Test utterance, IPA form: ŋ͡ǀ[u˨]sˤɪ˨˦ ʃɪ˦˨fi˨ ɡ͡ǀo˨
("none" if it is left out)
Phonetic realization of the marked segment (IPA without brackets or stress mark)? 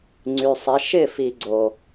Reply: y˨